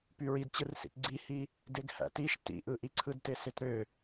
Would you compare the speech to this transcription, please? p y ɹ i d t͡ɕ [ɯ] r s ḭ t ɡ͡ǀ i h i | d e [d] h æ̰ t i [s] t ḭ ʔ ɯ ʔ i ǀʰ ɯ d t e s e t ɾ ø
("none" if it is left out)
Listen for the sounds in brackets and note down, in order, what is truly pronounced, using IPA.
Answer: ɯ, ɡ, ʃ

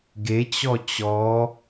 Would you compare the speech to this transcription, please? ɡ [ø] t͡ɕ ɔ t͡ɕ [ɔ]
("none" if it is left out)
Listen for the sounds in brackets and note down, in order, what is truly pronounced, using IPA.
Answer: e, ɔ

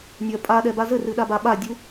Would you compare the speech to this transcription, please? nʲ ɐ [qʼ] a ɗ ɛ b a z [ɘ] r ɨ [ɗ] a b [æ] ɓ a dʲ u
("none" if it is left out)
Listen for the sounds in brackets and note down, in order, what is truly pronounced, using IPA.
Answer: pʼ, ɘ, ɗ, a

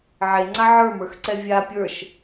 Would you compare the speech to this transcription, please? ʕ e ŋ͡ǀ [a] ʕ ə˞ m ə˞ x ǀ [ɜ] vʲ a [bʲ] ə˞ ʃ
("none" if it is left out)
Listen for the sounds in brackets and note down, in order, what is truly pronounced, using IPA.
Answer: a, ɛ, pʲ

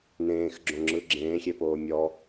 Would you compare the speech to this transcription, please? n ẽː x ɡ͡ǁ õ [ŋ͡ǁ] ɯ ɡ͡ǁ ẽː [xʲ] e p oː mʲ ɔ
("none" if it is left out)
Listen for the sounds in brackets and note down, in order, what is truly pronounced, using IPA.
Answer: ŋ͡ǁ, xʲ

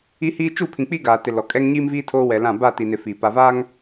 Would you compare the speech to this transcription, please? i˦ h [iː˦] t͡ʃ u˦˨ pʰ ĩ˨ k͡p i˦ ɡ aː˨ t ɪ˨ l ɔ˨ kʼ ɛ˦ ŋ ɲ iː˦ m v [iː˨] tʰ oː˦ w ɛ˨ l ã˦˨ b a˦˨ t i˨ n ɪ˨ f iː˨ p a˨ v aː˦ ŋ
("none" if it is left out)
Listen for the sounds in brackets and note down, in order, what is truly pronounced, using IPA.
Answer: iː˦, iː˦

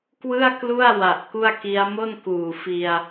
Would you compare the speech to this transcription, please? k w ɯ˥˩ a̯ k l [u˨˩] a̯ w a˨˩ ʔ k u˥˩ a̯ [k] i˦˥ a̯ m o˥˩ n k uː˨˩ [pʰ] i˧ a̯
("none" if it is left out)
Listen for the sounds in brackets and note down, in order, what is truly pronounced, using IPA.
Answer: u˥˩, k, f

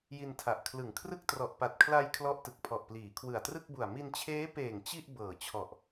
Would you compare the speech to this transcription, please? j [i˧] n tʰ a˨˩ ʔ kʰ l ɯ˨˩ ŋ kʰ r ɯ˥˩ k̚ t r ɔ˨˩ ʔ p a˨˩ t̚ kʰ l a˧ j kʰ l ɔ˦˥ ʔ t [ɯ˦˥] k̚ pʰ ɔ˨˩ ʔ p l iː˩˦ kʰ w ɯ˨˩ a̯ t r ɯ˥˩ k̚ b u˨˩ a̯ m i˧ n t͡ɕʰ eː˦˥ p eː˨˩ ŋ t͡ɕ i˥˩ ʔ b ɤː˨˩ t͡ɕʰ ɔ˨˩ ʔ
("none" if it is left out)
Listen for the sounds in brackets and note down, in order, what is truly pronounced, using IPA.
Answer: i˧, ɯ˨˩

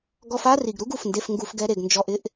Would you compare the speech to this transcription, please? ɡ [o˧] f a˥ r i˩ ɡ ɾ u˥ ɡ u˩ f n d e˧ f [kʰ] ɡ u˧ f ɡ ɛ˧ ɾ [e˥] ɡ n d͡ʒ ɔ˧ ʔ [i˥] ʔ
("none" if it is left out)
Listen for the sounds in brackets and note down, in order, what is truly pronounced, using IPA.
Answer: ɔ˧, ŋ, e˩, ɪ˥

